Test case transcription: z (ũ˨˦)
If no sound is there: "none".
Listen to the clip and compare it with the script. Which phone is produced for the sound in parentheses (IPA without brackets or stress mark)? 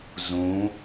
ũ˨˦